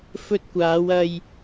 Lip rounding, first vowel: rounded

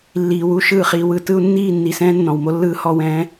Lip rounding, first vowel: unrounded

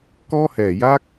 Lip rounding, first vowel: rounded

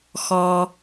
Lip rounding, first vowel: rounded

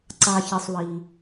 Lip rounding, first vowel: unrounded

